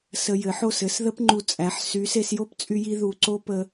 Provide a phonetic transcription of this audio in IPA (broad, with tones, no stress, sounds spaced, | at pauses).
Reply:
s ə˧ j ɘ˨˦ ħ o˦˨ s ɘ˨˦ s ð ə˦ p ŋ͡ǃ u˧ t͡sʼ æ˨˦ ħ s y˨˦ s e˧ s j o˦ p t͡sʼ y˧ j i˧ ð u˧ ǀ o˦ p ə˧